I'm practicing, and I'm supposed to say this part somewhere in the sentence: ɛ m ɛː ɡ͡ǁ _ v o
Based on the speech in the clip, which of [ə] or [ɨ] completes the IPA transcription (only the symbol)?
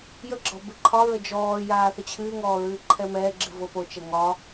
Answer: ɨ